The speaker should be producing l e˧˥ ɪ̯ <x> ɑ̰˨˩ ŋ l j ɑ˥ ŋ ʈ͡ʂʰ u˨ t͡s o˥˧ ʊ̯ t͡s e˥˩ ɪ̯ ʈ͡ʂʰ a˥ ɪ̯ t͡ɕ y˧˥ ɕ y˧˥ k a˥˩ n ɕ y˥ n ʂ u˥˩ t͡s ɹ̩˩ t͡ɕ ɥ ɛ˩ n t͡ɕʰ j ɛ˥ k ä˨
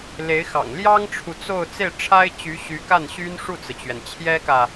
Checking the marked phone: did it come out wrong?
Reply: no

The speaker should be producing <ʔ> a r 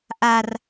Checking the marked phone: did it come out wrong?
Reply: no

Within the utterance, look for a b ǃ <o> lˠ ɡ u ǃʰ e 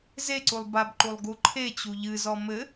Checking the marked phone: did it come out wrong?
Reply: yes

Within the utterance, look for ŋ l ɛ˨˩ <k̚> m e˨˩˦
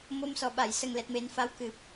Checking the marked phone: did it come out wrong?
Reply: yes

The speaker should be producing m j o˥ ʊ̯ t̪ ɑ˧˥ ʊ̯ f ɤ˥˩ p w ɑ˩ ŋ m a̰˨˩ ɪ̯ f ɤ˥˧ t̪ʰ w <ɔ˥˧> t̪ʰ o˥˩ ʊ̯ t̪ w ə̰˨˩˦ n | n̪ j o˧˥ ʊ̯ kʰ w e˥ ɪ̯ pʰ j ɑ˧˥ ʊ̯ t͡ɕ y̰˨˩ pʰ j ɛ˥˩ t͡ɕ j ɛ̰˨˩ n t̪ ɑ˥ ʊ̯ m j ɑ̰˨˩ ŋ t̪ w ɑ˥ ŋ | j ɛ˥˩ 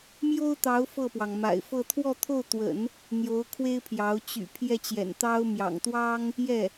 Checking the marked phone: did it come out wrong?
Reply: no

